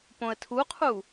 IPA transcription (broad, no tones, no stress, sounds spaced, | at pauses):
p õ ə̯ tʰ u qʰ u